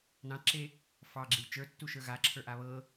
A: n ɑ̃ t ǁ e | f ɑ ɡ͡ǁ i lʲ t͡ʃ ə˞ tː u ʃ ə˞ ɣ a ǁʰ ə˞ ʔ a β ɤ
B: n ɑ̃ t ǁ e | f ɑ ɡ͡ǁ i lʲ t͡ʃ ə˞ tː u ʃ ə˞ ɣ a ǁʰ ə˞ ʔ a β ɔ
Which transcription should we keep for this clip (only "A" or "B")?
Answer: A